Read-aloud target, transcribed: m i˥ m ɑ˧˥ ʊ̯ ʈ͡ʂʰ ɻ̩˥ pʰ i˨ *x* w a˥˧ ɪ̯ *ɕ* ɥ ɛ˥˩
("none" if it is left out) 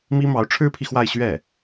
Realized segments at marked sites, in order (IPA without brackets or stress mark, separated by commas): x, ɕ